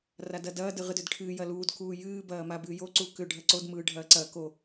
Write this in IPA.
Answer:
r a d ɐ d ɐː d ɨ ʁ ɨ d ʏ d ʈʰ ɨː j ɐ l uː d k uː j ɨː b ɐː m a b ɨː j o ǀ u k ʏ ɖʱ ɐ ǀ o d m ɯː ɖʱ ɐː ǀ ɐ k o

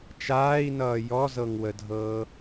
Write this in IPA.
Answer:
t͡ʃ aː i̯ n ʌː j ɔ z ɤ ŋ w ə dʱ ɤː

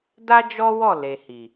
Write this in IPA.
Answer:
d a˦ d͡ʒ ɔ˦ w ɔ˦˨ l e˨ h i˨

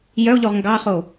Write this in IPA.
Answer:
j œ o̯ ʎ o ʁ ŋ ɡ ɑ χ o

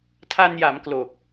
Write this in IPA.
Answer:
tʰ a˧ n j a˩˦ m k l o˨˩ k̚

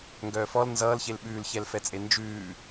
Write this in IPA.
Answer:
ŋ ɡ œː f ɔ l n z ʌː l ç e l ɓ ʉː l ç ɛ l f ɛ t͡sʼ e n d͡ʒ ʉː

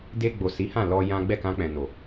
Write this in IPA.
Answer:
d e˧ ɡ͡b o˨ s i˨˦ h ã˦˨ l ɔ˧ j ã˦ ɡ͡b ɛ˦˨ k ã˧ k͡p ɛ̃˨ n o˨

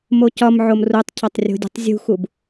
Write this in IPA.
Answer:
m o c ɒ m ʕ o m r u tˤ cʰ ɒ tˤ rʲ o̤ dʲ o̤ tˤ zʲ ṳ x u b

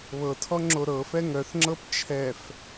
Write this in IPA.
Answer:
β ɤ tʰ ɔ ŋ͡ǁ o ɾ ɤ f ɛ ŋ œ θ ŋ͡ǁ ɤ p t͡ʃʰ ɛ f

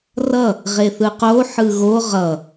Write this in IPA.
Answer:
r ʌ | ʁ e θ ɯ q o ħ ɯ ɣ o ʁ ʌ

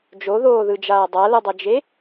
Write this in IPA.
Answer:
d͡ʒ o ð oː ð ɯ d͡ʒ aː dˤ a l ɯ dˤ ɤ d͡ʒ e

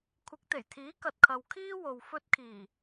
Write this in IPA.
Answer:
kʷʰ ɪ˨˥ k̚ t̪ e˨˩ j t̪ʰ iː˨˥ k ɐ˨ t̚ kʰ ɐ˨ w kʰ iː˥ w o˨ w f ɵ˧ t̚ kʰ iː˨˩

